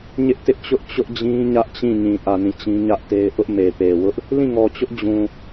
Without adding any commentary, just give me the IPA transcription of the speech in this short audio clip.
ɲɪ˦ʔtɪ˦ʔt͡ɕʊ˦ʔ t͡ɕʊ˦ʔd͡ʑĩ˦ ɲä˦ʔt͡ɕĩ˦˨ ɲĩ˨ʔä˨ nĩ˦˨t͡ɕĩ˦ɲä˦ʔte˦ɪ̯ ʔʊ˦ʔme˨ pe˨wʊ˦ʔ | lĩ˦˨ŋɔ˨t͡ɕʊ˦ʔ d͡ʑũ˨

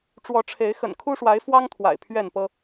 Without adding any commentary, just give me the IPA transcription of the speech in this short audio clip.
ʈ͡ʂwɔ˨˦ʈ͡ʂʰe˨˦ɪ̯ xə̰˨˩nkʰu˦ʂwa˨˦ɪ̯fwɑ˦ŋ t̪ʰwa̰˨˩ɪ̯pʰɥɛ˥˨npɤ˦

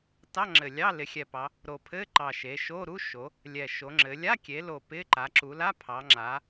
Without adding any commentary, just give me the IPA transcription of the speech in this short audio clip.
tɑ˧˥˧ŋ͡ǁɘ˨˩lʲɑ˧˥˧ lɪ˩˧xʲɛ˨˩pɑ˩˧ | ɾo˨˩pʰɘ˧˥˧ǃɑ˨˩ ʃe˩˧ʃo˧˥˧ ɾu˧˥˧ʃo˩˧ | lʲɛ˨˩ʃo˩˧ŋ͡ǁɘ˩˧ lʲa˧˥˧kʲe˩˧lo˨˩ pɪ˧˥˧ ǃa˩˧ǁu˩˧la˧˥˧pʰɑ˩˧ ŋ͡ǁa˩˧

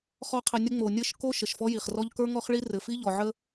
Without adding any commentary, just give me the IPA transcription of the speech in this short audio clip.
χɔ˦qʰɘ˧nʲə˦ ŋ͡mo˨nʲɘ˦˨ʃ ko˦ ʃə˨ʃfɔ˦ji˨χ rɔ˧ʎ kə˞˦ŋɔ˦χɭi˦ rɘ˨fi˦ ʎɔ˨ʕə˦

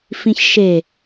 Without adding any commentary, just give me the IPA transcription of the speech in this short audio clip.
fĩçʃe

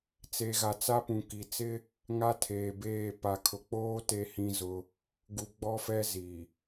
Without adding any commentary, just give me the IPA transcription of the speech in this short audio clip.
t͡se˨ɣa˨t͡sa˦ pũ˨ki˨ t͡sɪ˦ | ŋa˦tʰeː˨beː˦˨ pa˨kʰʊ˨k͡poː˦ te˦ hĩ˦ zʊ˦ | ɡu˨ɡ͡bɔ˦fɛ˦ ziː˨

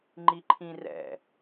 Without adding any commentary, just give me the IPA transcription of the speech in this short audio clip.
ŋ͡ǃiǃʰĩrɛ̰

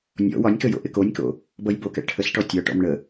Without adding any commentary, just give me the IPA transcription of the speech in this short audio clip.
nʲɔ̰ wɒnʲkə jo̰ʔɪkonʲko̰ | bʌjbokɛ̰ ʈʰəsʈɔ tʲɒʈɔ̰m ɳə

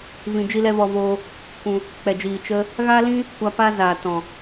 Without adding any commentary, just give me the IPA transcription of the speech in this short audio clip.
vĩ˧d͡ʒi˦lɛ˦vɔ˧ voː˧ | kʷũ˧ | k͡pɛ˨d͡ʒiː˨ t͡ʃə˦ | ɣa˦lĩ˦ | kʷa˧pa˦zaː˨ tɔ̃˨

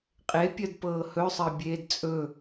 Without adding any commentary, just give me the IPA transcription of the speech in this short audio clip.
qʼepʲɜdpɤː hɵsˤɜbʲeːd t͡sʼɵ

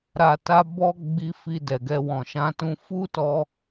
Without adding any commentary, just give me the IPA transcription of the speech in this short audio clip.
ɾa˧ta˦bɔ˦ ɡ͡bi˧ fi˧dɛ˨ɡɛ˧ wɔ̃˨ʃã˧tũ˧ fu˦tɔ˧

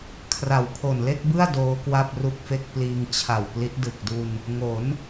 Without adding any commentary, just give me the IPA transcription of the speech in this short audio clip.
kʰra˨˩wkʰo˨˩nle˥˩k̚bɯ˥˩a̯ doː˦˥ kwa˥˩p̚ru˥˩k̚fe˥˩k̚ pliː˧ŋt͡ɕʰa˨˩w pli˦˥t̚ dɯ˨˩k̚du˧n | ŋo˩˦n

